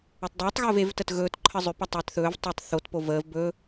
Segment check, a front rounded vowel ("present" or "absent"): present